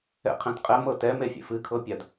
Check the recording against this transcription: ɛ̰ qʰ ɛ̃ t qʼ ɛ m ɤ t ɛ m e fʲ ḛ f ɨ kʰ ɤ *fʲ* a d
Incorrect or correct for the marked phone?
incorrect: pʲ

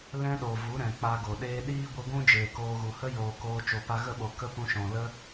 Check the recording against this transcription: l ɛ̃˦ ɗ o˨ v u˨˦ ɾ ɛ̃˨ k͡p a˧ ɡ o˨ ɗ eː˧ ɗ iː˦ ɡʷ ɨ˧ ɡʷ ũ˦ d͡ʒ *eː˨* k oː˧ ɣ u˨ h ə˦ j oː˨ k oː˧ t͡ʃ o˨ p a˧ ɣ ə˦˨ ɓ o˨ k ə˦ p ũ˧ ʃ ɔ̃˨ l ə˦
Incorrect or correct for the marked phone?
correct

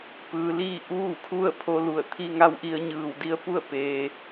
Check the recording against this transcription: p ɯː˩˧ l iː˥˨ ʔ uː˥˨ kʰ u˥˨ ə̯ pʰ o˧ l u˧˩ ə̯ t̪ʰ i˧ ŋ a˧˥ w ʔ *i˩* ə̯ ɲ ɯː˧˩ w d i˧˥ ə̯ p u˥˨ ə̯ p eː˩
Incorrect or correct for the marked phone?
incorrect: i˧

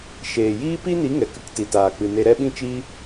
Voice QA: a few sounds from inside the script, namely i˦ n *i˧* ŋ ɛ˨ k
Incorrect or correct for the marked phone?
incorrect: i˨˦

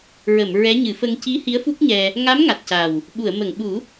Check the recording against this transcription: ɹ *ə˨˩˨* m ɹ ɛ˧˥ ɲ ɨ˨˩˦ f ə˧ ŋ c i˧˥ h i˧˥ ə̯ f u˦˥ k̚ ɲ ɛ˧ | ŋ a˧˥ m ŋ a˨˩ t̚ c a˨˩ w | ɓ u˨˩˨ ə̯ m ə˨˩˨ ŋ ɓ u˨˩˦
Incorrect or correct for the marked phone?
correct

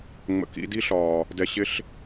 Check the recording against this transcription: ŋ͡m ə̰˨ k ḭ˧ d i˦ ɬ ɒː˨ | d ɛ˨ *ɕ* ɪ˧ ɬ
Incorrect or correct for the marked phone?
correct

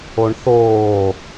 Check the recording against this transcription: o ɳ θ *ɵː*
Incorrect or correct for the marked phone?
incorrect: oː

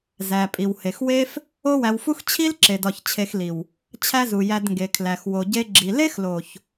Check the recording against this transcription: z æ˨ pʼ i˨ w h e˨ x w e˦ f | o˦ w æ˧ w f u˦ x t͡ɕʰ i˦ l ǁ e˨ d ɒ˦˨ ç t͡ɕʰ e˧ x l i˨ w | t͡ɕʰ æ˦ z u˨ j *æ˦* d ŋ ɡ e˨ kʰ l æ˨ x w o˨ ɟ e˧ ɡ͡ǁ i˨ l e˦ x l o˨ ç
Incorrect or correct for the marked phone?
incorrect: æ˧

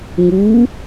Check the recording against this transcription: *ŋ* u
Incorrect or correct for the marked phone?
correct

